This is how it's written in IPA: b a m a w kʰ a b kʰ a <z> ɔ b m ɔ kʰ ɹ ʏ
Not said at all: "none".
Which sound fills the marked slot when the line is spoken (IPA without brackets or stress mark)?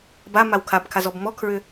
z